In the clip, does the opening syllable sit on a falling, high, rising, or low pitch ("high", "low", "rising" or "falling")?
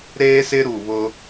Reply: high